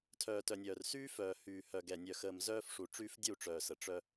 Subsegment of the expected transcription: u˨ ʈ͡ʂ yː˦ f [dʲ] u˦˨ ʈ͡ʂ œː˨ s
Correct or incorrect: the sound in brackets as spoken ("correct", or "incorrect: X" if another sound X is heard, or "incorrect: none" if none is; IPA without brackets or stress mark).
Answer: correct